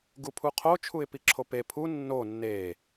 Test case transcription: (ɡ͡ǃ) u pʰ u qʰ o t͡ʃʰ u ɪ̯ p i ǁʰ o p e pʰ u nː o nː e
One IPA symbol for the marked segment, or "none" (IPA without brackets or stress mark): ɡ